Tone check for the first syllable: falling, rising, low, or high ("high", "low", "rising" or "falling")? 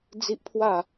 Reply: high